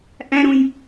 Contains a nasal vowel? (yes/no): yes